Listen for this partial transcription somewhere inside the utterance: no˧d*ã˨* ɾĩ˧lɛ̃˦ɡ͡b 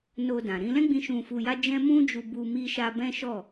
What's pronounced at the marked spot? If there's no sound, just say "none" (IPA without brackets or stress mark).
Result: ã˨